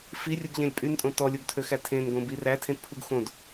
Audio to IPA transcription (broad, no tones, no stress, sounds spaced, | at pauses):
f i rʲ u ɡ ʎ ẽ lʲ pʼ y n tʼ õ t ɔ lʲ o ɡ tʰ ø x æ tʰ ẽ n ɡ õ b i r æ tʰ ẽ t pʰ u ɡ x õ d